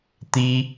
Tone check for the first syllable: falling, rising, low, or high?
high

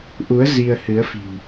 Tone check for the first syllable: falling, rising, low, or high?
rising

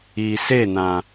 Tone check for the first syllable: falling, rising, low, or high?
low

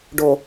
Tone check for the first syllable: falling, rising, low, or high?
low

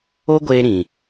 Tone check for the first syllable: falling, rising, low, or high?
high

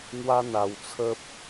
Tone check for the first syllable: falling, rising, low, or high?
high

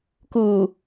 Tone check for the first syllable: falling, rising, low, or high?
low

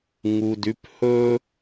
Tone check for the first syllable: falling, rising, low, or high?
low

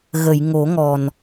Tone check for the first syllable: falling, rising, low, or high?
low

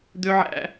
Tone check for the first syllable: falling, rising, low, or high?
high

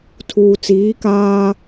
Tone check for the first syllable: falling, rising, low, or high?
low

